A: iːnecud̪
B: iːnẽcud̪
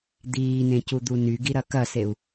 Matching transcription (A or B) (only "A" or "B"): B